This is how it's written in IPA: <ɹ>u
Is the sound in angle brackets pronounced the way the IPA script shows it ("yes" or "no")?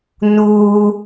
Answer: no